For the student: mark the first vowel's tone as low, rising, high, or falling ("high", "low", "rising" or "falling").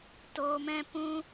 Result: low